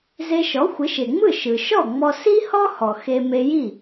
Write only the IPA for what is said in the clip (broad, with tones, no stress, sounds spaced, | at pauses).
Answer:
z e˧ ʃ ɔ˩˥ xʷ ɪ˩˥ ʃ e˩ ŋ͡m ɯ˥˩ ʃ ɯ˩ ʃ ɔ˥˩ ŋ͡m ɔ˧ s i˥ h ɔ˥ h ɔ˩ x e˧ m e˧ j i˥˩